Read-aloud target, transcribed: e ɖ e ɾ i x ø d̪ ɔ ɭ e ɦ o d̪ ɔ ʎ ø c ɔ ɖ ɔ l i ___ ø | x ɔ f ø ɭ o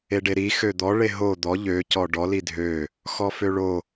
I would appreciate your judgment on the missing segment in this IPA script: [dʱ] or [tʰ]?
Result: dʱ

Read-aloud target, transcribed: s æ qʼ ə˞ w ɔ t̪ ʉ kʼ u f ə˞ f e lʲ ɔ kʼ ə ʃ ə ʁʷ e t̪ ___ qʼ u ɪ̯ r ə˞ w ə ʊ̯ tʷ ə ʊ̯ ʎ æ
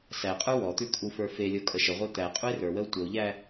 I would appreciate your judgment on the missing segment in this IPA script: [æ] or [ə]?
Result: æ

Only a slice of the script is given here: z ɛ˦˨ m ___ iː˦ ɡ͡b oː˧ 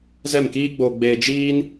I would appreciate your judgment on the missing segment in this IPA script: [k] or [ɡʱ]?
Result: k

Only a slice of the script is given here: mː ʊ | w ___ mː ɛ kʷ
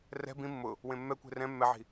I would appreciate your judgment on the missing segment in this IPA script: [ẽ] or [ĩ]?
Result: ẽ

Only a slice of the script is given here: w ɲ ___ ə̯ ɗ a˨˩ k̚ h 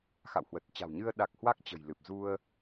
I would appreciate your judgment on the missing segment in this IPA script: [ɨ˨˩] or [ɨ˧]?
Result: ɨ˧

